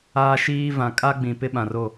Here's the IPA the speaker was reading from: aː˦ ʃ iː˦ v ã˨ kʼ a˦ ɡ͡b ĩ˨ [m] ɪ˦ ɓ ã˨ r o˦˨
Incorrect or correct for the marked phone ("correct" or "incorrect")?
incorrect